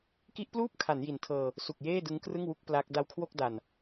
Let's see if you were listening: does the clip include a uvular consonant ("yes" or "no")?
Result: no